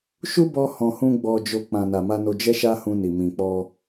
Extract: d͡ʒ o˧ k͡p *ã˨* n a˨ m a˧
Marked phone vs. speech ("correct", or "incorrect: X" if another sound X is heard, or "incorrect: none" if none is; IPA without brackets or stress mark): correct